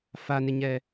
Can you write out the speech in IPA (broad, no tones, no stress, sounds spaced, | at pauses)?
f a n ɪ ɲ ɛ